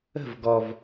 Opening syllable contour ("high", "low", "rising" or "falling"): falling